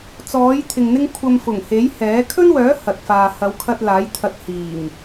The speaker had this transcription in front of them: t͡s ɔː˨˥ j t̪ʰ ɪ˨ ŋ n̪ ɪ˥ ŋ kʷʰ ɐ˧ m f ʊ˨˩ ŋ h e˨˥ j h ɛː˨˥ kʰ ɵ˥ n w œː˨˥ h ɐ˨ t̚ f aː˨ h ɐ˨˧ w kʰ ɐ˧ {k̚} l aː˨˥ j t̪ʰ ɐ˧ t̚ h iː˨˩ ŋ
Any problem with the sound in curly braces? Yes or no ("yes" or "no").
yes